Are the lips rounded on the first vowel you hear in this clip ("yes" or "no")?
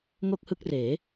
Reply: yes